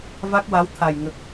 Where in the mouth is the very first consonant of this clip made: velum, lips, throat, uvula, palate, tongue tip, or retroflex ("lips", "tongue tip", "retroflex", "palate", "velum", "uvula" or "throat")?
lips